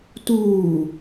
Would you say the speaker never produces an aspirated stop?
yes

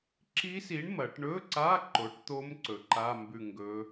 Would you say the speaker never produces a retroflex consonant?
no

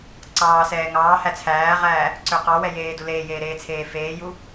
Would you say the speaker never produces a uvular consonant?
no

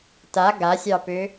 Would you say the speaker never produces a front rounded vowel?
no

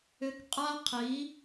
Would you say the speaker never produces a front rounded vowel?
no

